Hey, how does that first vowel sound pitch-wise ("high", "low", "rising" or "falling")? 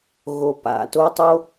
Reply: low